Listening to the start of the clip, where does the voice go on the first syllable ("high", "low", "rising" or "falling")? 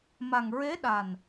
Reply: low